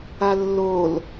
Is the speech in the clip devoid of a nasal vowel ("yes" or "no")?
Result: yes